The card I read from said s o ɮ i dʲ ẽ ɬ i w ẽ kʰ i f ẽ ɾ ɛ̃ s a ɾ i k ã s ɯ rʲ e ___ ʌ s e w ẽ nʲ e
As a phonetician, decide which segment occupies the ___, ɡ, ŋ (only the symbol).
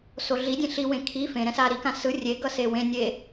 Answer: ɡ